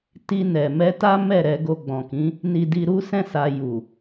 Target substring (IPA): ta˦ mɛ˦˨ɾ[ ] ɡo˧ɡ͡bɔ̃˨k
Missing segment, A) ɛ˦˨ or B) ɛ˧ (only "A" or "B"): B